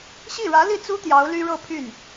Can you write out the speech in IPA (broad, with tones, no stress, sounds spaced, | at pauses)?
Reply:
ɕ i˥˩ ɻ ä˧˥ l i˥˩ t͡s u˥ t̪ j ɑ˧˥ ʊ̯ l y˥ ɻ ɤ˥˧ pʰ y˥˩ n